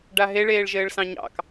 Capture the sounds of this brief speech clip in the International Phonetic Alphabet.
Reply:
ɖ a ɦ e ɭ eː ɭ ʒ ɘː ɭ s ɑ̃ ɲ ɑ̰ k

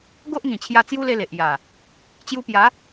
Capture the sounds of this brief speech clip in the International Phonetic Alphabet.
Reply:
ɡ o˦ ʔ ŋ ĩ˨˩ t͡ɕʰ j a˧ t͡s j u˦ l e˧ l e˨ ʔ j a˨˩ | t͡ɕ j u˧ p j a˨˦

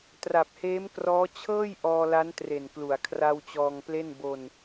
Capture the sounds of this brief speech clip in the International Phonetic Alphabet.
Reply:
t r a˨˩ p̚ h eː˦˥ m k r ɔː˦˥ t͡ɕʰ ɤː˥˩ j ʔ ɔː˧ l a˦˥ n t r e˨˩ n k l u˩˦ a̯ kʰ r a˧ w t͡ɕ ɔː˧ ŋ p l e˥˩ n b o˧ n

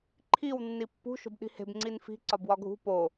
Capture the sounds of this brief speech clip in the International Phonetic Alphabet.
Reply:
ǃʰ i w nː i pː ṳ ʃ o̤ b ɗ i̤ h e̤ b ŋ͡ǀ i n f i̤ ǀ ɒ b w ɒ ɡʱ ṳ p o

